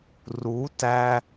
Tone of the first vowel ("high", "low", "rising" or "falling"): rising